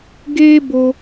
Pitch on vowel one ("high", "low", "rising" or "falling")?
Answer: high